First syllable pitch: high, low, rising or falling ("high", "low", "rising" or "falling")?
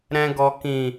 low